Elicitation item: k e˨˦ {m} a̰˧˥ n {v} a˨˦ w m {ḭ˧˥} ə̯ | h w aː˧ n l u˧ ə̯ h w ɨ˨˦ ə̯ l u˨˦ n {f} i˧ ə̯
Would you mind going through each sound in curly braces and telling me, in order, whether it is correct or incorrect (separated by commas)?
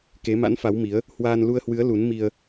correct, incorrect, incorrect, incorrect